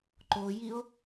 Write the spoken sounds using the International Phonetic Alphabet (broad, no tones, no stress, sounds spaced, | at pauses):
ǃ o j i o̯